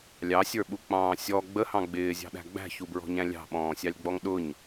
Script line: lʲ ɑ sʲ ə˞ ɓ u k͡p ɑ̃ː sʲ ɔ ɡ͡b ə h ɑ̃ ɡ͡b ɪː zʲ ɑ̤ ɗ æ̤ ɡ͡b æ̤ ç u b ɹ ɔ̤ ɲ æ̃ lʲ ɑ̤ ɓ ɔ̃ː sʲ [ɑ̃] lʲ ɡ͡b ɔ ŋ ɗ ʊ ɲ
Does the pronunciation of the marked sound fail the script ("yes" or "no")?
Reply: yes